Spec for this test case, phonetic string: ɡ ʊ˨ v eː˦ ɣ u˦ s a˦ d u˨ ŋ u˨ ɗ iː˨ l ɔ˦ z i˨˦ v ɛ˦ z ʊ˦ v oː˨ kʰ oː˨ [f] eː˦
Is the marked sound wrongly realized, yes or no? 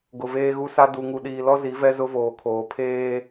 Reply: yes